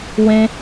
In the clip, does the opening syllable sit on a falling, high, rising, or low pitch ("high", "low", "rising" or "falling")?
high